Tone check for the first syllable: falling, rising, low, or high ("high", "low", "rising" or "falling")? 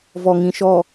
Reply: low